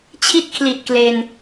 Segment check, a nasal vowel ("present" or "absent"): absent